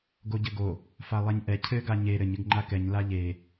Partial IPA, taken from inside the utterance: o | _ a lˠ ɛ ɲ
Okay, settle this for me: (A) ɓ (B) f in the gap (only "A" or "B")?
B